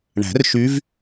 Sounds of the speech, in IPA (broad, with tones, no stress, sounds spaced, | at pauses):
ɳ æ̤˨˩˦ r ʃ y˧˥ v